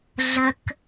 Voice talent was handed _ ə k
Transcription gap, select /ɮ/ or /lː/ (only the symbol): ɮ